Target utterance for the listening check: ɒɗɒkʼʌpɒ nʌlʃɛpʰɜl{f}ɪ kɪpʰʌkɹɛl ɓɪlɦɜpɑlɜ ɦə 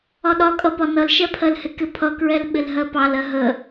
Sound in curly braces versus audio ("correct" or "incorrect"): incorrect